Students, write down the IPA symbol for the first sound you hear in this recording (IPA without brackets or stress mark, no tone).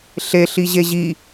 ɬ